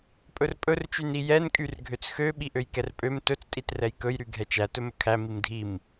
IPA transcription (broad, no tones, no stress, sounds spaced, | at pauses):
pʼ ɵ r pʼ ɵ r t͡ʃ y n i j ɛ n kʼ y r ɡʱ ø t͡s x ø ɓ i ʔ ø j k ɛ r pʼ ø m t ɵ t͡s tʼ i t r ɛ j k ɵ j ɾ y ɡʱ ɛ t͡ʃ æ t ɵ m ɵ kʰ æ m i m dʱ i m